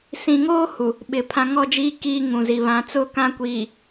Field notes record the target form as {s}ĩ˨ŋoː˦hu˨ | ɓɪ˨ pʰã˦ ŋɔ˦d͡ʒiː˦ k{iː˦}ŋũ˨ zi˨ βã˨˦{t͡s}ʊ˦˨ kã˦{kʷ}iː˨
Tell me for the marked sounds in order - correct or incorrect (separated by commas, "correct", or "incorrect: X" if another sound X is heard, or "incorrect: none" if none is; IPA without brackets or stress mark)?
correct, correct, correct, correct